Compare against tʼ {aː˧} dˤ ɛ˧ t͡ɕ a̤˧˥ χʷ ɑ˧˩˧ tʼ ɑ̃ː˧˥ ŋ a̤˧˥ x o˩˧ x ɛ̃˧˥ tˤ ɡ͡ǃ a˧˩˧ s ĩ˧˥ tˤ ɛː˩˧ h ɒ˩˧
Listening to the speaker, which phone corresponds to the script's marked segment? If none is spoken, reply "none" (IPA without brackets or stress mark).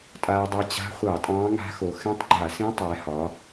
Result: aː˧